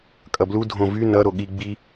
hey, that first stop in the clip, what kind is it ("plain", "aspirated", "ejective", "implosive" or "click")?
ejective